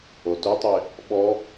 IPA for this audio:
otɵtˤe | ɓɔ

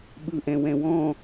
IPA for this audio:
ɓɯʔɛ̃wɛ̃wɔ̃

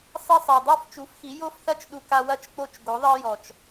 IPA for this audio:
sˤi˧sˤa˨dˤo˦˨f t͡ʃu˨˦fxi˨˦ jo˦fθɐ˦t͡ʃ ɗu˧ ka˧wɐ˦t͡ʃ k͡po˦˨t͡ʃɡo˨˦ðˤɜ˦ jɔ˨t͡ʃ

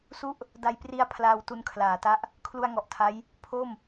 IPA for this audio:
su˥˩ʔ | da˧jpri˧a̯ pʰlaː˧wtu˧n kʰlaː˩˦ta˦˥ʔ | kʰlu˧a̯ŋɔ˨˩ʔtʰa˦˥j | pʰo˥˩m

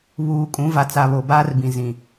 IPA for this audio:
βuː˨kʼũ˨˦va˨ t͡sa˨βo˨baː˦rbĩ˨ zĩ˨

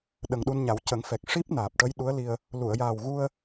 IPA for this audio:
ɗə˨˩ŋɗu˧nɲa˨˩˦w cə˨˩˦ŋfɛ˨˩k̚ ʂi˦˥p̚ naː˨˩p̚ʈə˧˥j ɗu˧˥ə̯li˧ə̯ | lu˨˩˨ə̯jaː˨˩wɣu˧ə̯

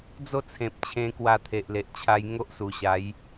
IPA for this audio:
d͡zo˥˧t͡sʰẽ˨p̚t͡ɕʰẽ˧ kwa˧t̪ʰe˨ʔle˨ʔ t͡ɕʰa˧j ŋo˦ʔsu˨˩ɕa˨˦j

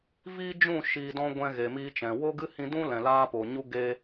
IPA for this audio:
viː˦ d͡ʒũ˦˨ʃiː˨dɔ̃˧ ɡʷɛ̃˧ɣe˨miː˧t͡ʃɛ̃˨ wo˦ɡɨ˦hĩ˧ dũ˦lɛ̃˨laː˧ po˨ ɲu˧ ɡe˧

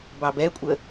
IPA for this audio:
bɑbɛkʷʼə

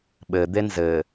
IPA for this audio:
ɓɘd̪e nzɘ

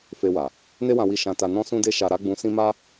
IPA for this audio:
fe˧wa˨ | ne˦wã˧wi˧ ʃã˧ta˧ nɔ̃˦ sũ˦de˦ʃa˧ ɾa˧ ɡ͡bũ˧sĩ˦ ma˦

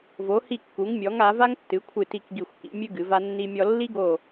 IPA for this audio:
vo˩˧hi˧˩kːu˩˧ŋmʲɔ˩˧ŋ a˩˧ va˦ŋtːɨ˩˧kʷʰɨ˧˩ti˧˩k ɡi˧˩xʷkḭ˩˧mʲɨ˦ ɡɨ˩˧va˦nːi˦mʲɔ˦ lːi˦ɡo˧˩

